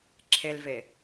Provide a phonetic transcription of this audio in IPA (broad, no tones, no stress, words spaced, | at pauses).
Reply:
ǁʰelve